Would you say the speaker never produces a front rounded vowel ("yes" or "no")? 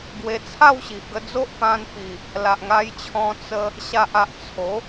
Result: yes